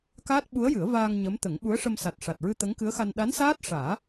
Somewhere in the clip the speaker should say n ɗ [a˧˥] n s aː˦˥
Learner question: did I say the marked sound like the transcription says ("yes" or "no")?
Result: yes